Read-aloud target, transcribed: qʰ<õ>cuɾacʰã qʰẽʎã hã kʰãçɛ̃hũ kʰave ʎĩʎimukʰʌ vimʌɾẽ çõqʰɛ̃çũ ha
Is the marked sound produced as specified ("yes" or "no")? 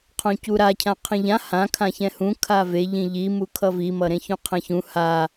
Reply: yes